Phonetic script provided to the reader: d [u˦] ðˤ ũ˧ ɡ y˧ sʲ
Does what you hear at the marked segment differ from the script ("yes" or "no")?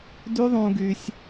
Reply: yes